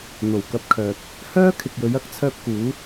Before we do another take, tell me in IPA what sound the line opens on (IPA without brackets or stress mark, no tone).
n̪